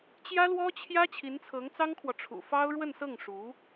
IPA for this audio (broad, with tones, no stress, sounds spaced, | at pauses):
t͡ɕ j ä˥ l w ɔ˥ t͡ɕʰ j ä˥ t͡ɕʰ i˧˥ n t͡sʰ ɤ˧˥ ŋ t͡s ɑ˥ ŋ kʰ w ɔ˨ ʈ͡ʂʰ ṵ˨˩ f ɑ˥ ʊ̯ ɻ w ə˥˧ n s ɤ˥˩ ŋ ʂ u˧˥